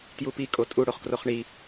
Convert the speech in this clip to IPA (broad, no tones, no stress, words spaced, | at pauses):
tjupi kʼotʼu ɽoχkroχɳi